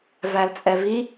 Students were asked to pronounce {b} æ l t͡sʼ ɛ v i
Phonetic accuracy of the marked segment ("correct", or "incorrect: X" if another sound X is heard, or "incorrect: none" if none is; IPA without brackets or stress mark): incorrect: v